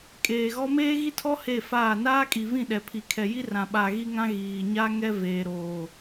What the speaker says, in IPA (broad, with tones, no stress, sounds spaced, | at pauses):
kʼ eː˨ ɣ ɔ˦ m eː˦ ɣ i˦ tʰ ɔ˦ h e˦˨ f aː˦˨ n aː˦ kʼ i˨ v ĩ˦˨ ɗ ɛ˨ pʰ i˨ kʰ ɛ˨ j i˦ r ã˨ ɓ a˨ ɣ i˦ ŋ ã˦ ɣ iː˨ ɲ a˦ ŋ ɛ˦ v eː˨ ɾ oː˨